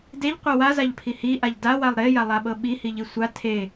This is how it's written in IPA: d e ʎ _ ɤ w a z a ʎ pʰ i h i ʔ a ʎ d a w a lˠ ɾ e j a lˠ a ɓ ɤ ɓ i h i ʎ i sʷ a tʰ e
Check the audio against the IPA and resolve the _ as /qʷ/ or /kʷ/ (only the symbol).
qʷ